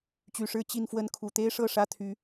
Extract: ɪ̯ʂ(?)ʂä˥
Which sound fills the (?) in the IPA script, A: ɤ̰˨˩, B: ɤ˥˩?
B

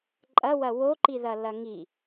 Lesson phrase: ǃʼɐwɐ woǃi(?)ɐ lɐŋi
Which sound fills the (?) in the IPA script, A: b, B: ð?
B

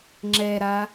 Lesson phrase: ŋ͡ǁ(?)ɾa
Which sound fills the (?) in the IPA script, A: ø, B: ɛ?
B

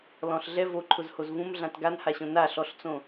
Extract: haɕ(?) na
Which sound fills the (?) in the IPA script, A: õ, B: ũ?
A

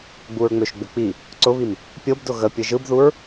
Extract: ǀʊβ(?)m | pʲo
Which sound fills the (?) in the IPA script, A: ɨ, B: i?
B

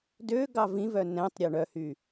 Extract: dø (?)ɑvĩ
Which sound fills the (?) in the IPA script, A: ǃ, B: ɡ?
B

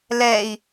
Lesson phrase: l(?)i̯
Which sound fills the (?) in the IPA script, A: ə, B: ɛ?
B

